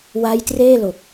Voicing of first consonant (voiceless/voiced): voiced